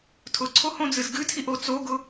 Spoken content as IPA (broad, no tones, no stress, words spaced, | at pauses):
tʰʊǀʰohõd͡zɨz ɡɨtʰiʔo t͡soɡʊ